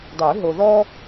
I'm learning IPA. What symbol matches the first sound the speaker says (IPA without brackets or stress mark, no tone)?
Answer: dˤ